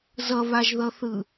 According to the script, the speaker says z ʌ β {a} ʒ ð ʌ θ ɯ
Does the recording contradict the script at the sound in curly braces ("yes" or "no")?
no